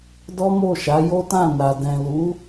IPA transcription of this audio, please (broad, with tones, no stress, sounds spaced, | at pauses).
d ɔ˦ m o˦˨ ʃ a˨˦ j o˦ t ã˦˨ n a˨ d ɛ̃˨ l u˨˦